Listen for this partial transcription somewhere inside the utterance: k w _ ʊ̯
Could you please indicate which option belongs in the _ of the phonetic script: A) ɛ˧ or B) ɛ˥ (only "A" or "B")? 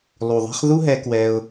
A